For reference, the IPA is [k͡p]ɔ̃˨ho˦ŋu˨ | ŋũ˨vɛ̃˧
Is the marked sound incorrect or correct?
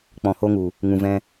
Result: correct